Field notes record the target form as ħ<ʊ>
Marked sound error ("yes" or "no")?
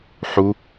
yes